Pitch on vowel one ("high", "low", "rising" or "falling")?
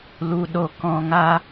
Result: low